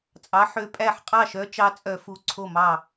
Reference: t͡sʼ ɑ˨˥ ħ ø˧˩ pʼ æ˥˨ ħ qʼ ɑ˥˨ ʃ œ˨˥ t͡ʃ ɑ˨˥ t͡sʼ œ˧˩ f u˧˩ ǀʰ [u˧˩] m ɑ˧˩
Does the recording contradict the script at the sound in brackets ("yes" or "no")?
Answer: yes